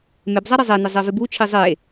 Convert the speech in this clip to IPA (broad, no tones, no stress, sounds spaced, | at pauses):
m e b zˤ a ɾ ɪ zˤ ɛ n ɪ zˤ ɛ v ɪ b u t͡ʃʰ i zˤ e